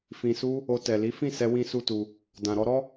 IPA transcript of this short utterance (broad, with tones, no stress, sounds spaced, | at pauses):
f ĩ˨ s u˧ | o˧ t ɛ˨ l i˨˦ f ĩ˦˨ s ɛ˧ w ĩ˦ s u˦ t u˧ | d ã˨ ɾ ɔ˧ ɾ ɔ˦